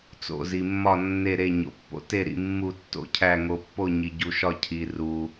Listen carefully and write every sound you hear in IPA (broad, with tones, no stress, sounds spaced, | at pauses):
t͡s o̰˧˩ z i˩ mː ɒ˧˩ nː e˧˩ ɾ e˧˩ ɲ o̰˩ pː o̰˩ t e˧˩ ɾ ḭ˩ mː u˧˩ tː o̰˧˩ cʰ æ˧˩ ŋ o˩ pː o˧˩ ɲ i˩ ɟ u˩ ʃ ɒ˧˩ cʰ i˩ r u˩